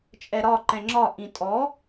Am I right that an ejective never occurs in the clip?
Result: no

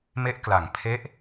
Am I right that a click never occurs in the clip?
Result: yes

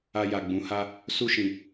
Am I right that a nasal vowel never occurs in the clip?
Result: no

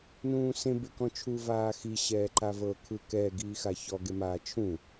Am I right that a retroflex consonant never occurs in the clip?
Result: yes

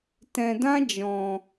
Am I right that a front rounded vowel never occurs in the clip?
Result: yes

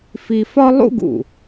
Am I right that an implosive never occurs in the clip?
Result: yes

